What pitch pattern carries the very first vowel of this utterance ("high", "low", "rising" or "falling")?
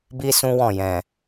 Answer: high